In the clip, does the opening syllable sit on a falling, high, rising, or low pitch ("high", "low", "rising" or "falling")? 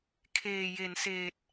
low